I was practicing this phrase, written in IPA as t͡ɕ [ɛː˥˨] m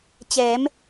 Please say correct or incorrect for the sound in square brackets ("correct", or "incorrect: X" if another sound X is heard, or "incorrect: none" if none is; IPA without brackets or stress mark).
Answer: incorrect: ɛː˩˧